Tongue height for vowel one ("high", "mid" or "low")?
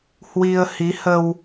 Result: high